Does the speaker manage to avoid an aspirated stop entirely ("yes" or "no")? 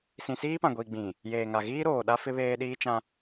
yes